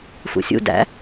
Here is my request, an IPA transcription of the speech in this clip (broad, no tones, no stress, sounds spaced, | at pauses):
f ṵ sʲ ṵ d æ̰